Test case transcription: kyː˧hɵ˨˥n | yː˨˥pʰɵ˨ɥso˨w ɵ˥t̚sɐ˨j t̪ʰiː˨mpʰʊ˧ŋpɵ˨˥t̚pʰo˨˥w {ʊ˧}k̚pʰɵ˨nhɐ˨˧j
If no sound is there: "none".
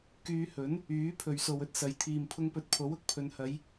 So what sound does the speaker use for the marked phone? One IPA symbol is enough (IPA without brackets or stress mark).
ʊ˥